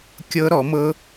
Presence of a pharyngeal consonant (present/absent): absent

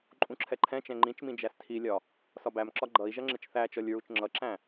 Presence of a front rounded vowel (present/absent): absent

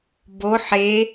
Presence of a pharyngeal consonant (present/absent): present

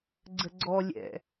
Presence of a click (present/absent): present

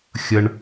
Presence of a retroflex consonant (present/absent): present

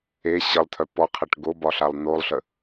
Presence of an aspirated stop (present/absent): present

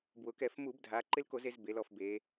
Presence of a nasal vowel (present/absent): absent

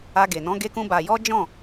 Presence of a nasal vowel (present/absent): present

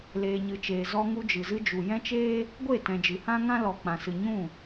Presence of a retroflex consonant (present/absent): absent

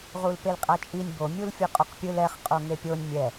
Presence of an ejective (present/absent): present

